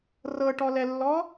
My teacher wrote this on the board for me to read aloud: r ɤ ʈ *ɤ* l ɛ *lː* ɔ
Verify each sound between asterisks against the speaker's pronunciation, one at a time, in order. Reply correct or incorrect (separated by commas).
incorrect, correct